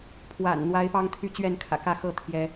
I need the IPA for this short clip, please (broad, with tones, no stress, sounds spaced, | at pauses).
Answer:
pʰ w a̰˨˩ n n̪ w a˨˦ ɪ̯ p ɑ˦ ŋ t̪ʰ y˥˨ t͡ɕ ɥ ɛ˥˨ n kʰ ä̰˨˩ k ä˥˨ x ɤ˥˨ t̪ʰ j ɛ˦